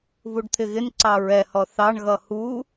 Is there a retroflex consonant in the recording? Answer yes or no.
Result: yes